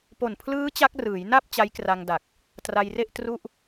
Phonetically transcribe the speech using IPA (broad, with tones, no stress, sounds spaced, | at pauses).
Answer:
p o˨˩ n pʰ l ɯː˦˥ t͡ɕ a˦˥ k̚ r ɯː˩˦ j n a˥˩ p̚ t͡ɕ a˦˥ j k r a˧ ŋ d a˨˩ k̚ | t r a˧ j r e˥˩ ʔ t r u˥˩ ʔ